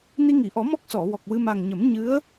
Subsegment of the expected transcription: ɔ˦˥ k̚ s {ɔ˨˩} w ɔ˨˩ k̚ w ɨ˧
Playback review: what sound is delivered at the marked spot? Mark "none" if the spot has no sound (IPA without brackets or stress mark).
ɔ˨˩˨